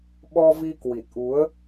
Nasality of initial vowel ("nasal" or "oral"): oral